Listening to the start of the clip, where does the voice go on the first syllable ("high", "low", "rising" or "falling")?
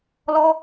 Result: high